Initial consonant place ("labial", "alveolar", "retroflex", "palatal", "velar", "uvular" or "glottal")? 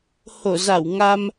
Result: glottal